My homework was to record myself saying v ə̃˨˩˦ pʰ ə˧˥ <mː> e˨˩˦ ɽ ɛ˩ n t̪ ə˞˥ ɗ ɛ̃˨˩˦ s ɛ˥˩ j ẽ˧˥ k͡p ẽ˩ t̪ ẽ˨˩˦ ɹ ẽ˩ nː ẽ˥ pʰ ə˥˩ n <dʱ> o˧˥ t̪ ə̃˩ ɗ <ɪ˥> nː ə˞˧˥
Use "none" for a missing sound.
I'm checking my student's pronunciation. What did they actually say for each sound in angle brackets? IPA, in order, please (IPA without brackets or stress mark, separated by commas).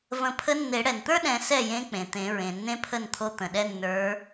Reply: nː, t̪ʰ, ɛ˥